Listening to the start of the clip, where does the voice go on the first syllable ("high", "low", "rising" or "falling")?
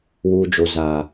low